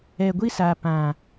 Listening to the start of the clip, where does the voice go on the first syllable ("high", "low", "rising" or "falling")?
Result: low